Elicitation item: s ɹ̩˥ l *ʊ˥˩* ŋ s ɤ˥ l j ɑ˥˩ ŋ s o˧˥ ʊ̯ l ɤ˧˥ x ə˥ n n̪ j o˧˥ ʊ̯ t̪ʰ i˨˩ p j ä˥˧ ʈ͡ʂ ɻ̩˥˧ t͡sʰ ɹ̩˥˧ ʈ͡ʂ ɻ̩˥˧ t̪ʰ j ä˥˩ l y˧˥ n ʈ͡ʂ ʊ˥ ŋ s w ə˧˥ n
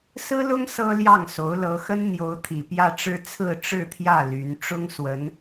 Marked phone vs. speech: incorrect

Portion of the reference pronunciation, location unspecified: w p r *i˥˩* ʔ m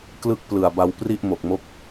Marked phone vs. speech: correct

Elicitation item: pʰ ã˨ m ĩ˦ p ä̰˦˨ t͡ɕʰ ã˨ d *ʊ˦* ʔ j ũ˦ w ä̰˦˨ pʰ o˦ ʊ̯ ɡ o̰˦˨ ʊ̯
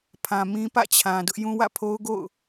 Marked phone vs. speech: correct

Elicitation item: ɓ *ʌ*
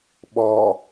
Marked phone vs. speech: incorrect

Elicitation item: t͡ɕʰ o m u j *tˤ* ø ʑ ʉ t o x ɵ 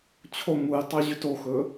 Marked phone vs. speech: correct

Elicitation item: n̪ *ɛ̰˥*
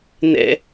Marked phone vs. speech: correct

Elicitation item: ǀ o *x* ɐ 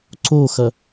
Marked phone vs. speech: correct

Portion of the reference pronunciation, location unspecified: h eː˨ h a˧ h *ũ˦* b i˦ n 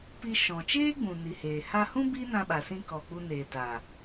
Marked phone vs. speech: correct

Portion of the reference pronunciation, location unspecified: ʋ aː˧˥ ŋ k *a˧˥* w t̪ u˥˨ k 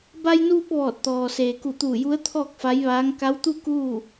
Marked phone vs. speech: correct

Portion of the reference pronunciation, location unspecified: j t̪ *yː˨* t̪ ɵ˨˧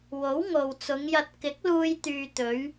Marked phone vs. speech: correct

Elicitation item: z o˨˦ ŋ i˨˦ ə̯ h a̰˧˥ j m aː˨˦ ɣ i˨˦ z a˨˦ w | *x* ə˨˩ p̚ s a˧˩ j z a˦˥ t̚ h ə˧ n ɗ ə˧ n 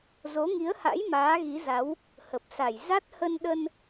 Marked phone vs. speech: incorrect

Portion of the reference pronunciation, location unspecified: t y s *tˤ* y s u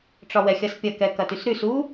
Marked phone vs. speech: incorrect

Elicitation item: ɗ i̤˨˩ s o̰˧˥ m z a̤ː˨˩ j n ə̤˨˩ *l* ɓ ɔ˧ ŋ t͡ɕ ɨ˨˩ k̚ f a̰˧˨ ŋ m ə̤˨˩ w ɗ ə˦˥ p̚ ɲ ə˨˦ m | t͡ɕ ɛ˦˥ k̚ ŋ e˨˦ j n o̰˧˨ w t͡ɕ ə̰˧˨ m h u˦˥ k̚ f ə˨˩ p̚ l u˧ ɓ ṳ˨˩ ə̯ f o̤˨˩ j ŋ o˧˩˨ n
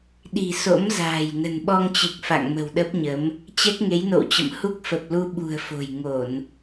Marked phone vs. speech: incorrect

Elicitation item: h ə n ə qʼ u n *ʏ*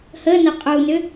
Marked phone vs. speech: correct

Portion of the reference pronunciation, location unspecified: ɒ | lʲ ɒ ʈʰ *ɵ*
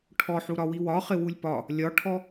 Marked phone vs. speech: incorrect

